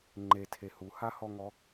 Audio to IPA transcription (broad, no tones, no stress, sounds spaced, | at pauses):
ŋ͡ǃ e tʰ e h u h a h ɔ ŋ ɔ